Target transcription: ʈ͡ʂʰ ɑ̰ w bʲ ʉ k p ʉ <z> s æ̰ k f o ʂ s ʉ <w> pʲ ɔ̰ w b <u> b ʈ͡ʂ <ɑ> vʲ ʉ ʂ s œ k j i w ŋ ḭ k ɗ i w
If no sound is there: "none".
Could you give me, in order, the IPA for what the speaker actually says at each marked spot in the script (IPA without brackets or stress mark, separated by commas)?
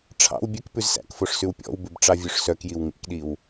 z, w, ʉ, ɑ